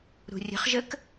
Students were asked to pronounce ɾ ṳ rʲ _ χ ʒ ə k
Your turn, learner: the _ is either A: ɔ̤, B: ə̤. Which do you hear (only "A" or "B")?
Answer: B